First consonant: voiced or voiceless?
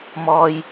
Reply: voiced